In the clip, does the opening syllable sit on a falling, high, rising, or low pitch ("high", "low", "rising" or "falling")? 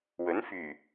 rising